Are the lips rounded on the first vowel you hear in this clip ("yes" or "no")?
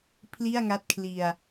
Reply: no